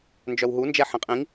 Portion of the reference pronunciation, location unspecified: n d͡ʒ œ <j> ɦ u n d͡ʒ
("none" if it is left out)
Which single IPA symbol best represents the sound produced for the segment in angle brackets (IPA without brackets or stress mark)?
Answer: w